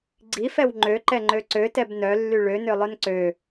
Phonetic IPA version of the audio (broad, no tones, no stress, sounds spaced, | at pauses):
ɡ͡ǀ i f ɛ w ŋ͡ǃ ø ǃ ɛ ŋ͡ǃ ø ǀ ø t ɛ b n œ lː y ɭ ø n ø lˠ œ n ǀ ø